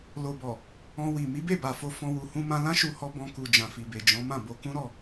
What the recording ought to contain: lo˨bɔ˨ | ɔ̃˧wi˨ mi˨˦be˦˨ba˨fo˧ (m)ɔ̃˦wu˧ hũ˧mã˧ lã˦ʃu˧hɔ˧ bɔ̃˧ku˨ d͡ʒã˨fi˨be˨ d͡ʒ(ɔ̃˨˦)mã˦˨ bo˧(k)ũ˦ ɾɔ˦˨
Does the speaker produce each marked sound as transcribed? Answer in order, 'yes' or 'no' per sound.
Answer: no, yes, yes

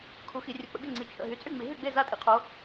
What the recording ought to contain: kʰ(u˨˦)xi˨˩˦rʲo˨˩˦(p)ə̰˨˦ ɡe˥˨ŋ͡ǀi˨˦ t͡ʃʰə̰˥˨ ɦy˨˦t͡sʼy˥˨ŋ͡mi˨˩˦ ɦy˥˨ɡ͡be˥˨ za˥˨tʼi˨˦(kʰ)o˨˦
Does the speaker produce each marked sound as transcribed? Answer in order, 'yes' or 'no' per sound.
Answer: yes, no, no

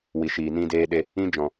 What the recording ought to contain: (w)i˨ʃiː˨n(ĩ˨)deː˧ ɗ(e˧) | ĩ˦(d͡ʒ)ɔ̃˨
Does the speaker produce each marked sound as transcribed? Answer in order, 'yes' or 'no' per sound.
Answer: yes, no, yes, yes

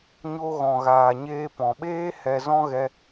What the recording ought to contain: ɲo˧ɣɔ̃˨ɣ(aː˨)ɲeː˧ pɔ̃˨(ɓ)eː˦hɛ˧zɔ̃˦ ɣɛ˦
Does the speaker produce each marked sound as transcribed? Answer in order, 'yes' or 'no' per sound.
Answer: yes, yes

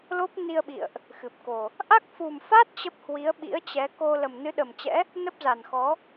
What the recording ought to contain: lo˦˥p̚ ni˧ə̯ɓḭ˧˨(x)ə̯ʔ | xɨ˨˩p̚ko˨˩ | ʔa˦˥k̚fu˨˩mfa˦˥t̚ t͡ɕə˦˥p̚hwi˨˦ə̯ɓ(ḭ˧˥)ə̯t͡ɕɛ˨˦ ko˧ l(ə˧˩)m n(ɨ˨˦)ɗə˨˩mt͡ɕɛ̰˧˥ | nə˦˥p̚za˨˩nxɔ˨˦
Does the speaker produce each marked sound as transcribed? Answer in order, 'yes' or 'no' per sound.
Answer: no, yes, no, yes

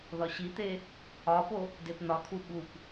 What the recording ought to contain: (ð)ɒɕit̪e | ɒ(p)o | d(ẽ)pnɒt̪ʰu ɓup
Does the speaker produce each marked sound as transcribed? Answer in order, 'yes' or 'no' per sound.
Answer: yes, yes, no

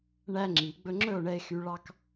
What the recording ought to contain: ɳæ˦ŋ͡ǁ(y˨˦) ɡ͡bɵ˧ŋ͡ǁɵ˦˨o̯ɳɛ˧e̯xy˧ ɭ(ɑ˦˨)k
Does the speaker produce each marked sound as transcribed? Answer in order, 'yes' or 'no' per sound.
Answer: no, no

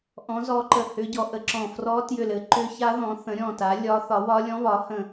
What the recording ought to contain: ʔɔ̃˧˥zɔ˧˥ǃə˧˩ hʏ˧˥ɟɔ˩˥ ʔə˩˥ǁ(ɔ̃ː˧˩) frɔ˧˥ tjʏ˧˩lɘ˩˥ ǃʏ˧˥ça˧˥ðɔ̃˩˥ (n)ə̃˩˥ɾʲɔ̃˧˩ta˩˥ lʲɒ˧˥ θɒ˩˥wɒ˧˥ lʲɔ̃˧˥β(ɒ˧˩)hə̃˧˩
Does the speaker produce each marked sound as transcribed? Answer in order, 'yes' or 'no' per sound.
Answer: no, no, no

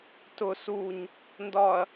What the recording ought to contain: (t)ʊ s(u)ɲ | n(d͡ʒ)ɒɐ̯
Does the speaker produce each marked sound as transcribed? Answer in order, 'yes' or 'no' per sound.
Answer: yes, yes, no

